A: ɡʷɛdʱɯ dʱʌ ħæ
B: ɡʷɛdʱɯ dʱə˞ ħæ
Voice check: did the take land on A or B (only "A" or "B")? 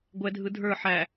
B